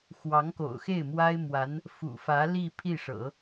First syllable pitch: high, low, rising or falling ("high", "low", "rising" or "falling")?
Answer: rising